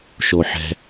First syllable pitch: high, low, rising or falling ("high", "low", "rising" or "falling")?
low